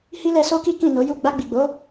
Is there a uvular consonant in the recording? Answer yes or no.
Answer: no